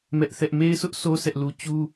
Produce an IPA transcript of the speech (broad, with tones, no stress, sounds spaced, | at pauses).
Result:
m ɛ˦ ʔ θ ɛ˦ ʔ m e˦ ɪ̯ s ʊ˦ ʔ s o˦ sʰ ɛ˦ ʔ l u˦ t͡ɕ u˦